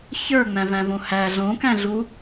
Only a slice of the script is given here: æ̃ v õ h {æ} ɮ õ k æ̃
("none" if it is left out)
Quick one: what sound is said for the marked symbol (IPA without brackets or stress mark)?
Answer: æ